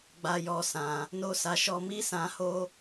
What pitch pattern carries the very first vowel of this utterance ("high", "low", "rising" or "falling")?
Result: high